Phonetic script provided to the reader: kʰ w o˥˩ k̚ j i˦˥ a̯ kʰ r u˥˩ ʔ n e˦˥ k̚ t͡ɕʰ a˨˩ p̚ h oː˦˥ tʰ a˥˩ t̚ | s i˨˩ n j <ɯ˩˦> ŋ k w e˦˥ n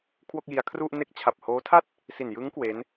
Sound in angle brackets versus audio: incorrect: ɯ˦˥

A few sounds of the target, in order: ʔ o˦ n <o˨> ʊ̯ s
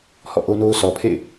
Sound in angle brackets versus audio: incorrect: o˦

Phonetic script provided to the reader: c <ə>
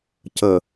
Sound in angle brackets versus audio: correct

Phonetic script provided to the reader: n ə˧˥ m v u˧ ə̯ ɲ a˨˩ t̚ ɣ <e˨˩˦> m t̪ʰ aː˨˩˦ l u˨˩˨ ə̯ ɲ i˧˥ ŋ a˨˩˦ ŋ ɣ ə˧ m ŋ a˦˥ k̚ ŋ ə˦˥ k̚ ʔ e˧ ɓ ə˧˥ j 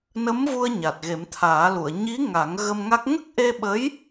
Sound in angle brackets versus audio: correct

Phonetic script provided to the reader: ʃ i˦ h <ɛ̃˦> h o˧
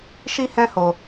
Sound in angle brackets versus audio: correct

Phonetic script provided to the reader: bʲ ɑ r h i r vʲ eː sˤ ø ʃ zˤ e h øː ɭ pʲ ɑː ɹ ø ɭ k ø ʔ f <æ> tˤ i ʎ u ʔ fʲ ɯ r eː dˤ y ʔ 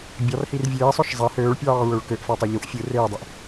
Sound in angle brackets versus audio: correct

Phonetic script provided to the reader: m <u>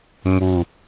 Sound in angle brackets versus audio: correct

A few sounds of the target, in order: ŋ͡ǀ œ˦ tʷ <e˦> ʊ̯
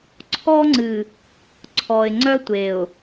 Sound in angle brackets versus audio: incorrect: e˨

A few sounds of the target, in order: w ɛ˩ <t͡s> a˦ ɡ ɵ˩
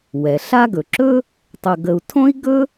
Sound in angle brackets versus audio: incorrect: ɬ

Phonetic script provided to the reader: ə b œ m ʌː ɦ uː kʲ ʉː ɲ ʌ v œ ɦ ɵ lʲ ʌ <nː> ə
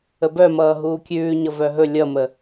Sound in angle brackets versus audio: incorrect: m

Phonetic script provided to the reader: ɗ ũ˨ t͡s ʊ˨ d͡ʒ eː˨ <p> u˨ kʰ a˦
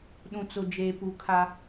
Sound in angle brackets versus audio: correct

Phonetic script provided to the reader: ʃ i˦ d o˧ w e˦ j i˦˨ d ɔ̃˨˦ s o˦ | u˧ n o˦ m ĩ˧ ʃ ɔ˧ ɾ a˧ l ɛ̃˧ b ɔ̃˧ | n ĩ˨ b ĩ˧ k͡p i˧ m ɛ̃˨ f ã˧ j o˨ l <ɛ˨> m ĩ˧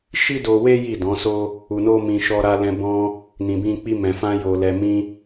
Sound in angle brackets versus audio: correct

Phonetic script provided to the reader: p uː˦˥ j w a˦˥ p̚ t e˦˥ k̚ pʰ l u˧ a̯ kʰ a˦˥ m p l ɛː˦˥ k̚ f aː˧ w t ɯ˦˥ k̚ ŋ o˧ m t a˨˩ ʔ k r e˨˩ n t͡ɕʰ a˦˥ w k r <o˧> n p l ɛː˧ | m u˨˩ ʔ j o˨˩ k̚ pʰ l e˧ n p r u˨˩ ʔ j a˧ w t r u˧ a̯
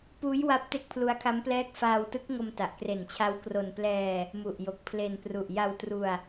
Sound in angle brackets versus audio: correct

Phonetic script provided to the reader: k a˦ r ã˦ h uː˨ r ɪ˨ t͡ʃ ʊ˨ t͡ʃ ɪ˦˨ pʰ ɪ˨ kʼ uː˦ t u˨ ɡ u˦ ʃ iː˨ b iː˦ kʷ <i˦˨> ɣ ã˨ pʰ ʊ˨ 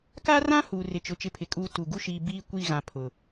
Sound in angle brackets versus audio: correct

